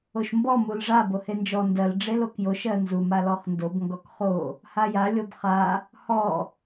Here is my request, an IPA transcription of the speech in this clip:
oʃmbɔ mulʐa bohend͡ʒɔ ndɜl ɖ͡ʐelokjoʃ ɜnzum alɔχndob ŋɡɔkχo | haja lʲobχa | hɔ

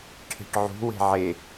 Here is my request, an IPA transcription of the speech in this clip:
ʈʰe̤ʈʕṳ we̤ʕe

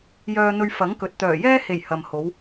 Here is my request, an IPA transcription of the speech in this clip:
jœː˧n̪ɵ˧ɥ fɐ˨˥ŋkɵ˨t̚ t̪œː˨˩jɛː˥he˨˩j hɐ˨m ho˨˧w

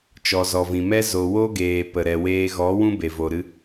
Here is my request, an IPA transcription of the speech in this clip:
t͡ʃɔ˨zɔ˨vĩ˨mɛ˦ zo˨wo˦ɡeː˨ pə˨ɾɛ˨weː˧ ɣɔ˨˦ wũ˦be˨vo˨ɾɨ˧

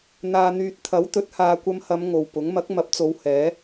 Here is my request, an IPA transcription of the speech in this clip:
n̪aː˨n̪yː˨t̚ t̪ʰɐ˨˥wt̪ɵ˨˥t̚ haː˨kʷɐ˧mhɐ˨˧m ŋo˨wpʊ˨˥ŋ mɐ˨˥k̚mɐ˨˥p̚t͡so˨˧w hɛː˨˥

